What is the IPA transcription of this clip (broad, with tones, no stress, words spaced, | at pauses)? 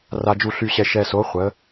ra˧d͡ʒu˧ɬy˧ɕɛ˧ ʃɛ˧so˨˥ χʷə˨˥